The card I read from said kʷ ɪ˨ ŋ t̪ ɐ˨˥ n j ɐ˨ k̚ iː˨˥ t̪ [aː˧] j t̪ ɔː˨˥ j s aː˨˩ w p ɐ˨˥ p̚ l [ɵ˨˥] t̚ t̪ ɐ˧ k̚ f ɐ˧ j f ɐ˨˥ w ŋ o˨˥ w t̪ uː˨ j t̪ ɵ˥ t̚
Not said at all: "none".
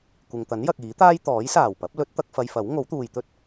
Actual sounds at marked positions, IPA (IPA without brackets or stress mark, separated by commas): aː˥, ɵ˨˥